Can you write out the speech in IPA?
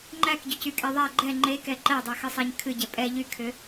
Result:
ŋ͡ǃækɟʏcykʼɛ ðˤæ ɡ͡ǃɛ ŋ͡ǃekɛ ǃædˤæxɨsˤæɲ kʰɨɟɛ pʼɛ ʎykʰʏ

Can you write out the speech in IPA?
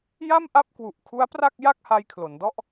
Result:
ja˥˩m ʔa˥˩p̚kwu˨˩ʔkʰu˦˥a̯ pra˥˩k̚ ja˥˩k̚ha˧jkʰlo˩˦ndɔ˥˩ʔ

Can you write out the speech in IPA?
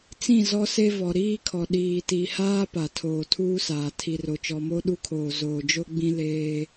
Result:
t͡sĩ˦˨ zɔ˦se˦ vɔ˨ɾiː˦kʰɔ˨ ɗiː˨ti˨haː˦ pa˨tʰoː˨tʰuː˦saː˨ tʰi˨ro˨ t͡ʃɔ˨mo˦ɗu˦kʰoː˨ zoː˨d͡ʒo˦ɡ͡bĩ˦ leː˦

